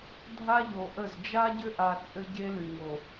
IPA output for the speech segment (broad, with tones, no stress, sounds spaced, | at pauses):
dʱ a˦ ʎ o˨ ʔ ə˦˨ z d͡ʒ a˦ ɟ ʏ˦ ʔ a˨ t͡sʼ ɘ˦ ɟ e˦ l y˨ ŋ o˨